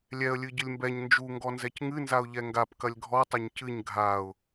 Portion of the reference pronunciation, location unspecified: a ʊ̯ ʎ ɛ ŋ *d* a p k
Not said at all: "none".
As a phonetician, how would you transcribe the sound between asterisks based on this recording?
ɡ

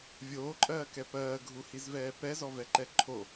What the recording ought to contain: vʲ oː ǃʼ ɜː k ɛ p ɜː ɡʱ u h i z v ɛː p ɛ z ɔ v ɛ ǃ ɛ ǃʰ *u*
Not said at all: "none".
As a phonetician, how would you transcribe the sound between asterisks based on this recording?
o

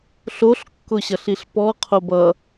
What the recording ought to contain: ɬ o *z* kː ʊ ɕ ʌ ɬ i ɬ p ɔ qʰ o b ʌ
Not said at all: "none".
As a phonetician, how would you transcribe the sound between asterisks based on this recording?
ɬ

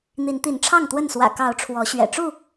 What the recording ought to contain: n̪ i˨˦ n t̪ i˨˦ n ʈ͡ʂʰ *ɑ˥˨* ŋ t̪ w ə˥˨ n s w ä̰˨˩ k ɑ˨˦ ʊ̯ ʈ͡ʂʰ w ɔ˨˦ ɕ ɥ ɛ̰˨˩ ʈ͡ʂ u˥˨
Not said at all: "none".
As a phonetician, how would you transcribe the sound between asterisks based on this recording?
ɑ˥˨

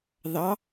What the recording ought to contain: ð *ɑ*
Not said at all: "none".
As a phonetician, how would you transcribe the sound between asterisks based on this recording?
ɑ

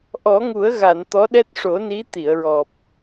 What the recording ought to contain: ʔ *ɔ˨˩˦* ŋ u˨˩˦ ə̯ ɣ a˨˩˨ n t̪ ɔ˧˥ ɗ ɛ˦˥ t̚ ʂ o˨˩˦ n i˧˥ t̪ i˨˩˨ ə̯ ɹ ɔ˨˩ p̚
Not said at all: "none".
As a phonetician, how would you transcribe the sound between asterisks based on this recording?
ɔ˨˩˦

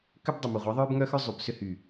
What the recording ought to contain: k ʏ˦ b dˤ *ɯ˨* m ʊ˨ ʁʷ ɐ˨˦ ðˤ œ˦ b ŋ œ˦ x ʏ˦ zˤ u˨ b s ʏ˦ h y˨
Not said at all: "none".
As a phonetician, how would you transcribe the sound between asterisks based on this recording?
ʊ˨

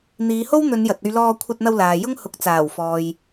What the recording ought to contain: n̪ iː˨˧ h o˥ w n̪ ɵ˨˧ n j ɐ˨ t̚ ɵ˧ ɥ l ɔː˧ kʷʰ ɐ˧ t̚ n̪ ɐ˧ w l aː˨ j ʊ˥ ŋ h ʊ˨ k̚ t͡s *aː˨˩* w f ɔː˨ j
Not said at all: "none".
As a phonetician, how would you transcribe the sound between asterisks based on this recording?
aː˨˩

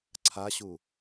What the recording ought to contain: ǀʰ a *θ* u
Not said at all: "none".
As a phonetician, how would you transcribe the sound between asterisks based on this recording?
ɕ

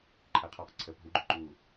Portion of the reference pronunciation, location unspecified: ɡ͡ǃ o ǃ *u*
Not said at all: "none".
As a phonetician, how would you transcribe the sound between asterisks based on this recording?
uː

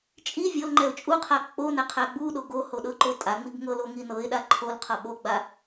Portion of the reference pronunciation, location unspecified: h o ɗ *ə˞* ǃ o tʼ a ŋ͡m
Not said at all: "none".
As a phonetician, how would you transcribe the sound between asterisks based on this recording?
ɤ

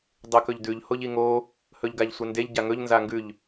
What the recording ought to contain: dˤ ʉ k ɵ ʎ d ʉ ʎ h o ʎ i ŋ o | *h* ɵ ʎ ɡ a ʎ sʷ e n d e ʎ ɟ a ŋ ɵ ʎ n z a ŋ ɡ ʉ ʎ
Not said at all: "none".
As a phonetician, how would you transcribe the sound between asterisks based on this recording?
h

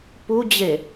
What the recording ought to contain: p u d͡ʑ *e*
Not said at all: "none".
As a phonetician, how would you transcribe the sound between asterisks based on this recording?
e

